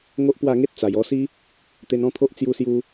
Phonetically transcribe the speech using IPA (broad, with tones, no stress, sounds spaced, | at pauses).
ŋ o˦ ʔ p w a˥˧ ŋ e˦ t̚ t͡s a˨˩ j ɔ˧ s i˦ | t̪ e˧ n ɔ̃˥˧ t̪ʰ o˦ ʔ t͡s j u˦ s j u˦